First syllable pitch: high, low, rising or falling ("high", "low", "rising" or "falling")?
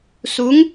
rising